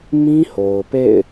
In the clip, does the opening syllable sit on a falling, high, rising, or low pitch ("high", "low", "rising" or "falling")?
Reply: high